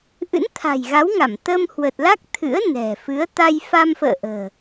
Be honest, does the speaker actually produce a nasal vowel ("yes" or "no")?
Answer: no